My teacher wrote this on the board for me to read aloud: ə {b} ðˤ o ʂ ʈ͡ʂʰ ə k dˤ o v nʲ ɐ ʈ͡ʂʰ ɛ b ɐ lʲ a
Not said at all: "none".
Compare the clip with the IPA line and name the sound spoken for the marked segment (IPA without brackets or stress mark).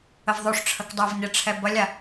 v